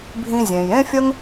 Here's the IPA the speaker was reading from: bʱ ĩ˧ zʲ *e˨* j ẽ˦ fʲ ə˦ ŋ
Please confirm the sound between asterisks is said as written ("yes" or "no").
no